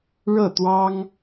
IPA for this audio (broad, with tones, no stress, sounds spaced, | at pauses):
ɻ ɤ˥˩ t̪ w ɑ˥ ŋ